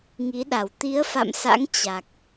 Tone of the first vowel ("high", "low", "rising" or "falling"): rising